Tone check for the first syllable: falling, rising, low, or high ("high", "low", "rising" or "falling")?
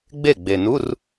falling